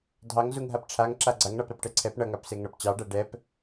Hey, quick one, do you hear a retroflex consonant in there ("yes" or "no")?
yes